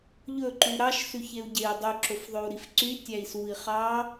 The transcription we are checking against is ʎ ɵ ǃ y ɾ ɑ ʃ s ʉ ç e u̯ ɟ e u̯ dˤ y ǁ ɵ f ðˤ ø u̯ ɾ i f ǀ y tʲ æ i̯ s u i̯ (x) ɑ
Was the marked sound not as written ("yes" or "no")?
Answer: yes